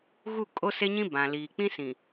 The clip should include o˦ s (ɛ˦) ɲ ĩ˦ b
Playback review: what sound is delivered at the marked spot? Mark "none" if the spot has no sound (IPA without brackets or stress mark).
e˦